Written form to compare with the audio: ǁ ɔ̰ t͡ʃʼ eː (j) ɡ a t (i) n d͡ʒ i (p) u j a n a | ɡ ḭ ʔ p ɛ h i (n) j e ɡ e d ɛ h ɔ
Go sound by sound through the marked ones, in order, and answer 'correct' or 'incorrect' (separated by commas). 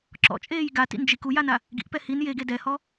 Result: correct, incorrect, incorrect, correct